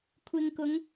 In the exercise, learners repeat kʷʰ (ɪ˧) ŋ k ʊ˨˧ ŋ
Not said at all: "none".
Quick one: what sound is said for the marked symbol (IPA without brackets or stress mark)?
ɪ˧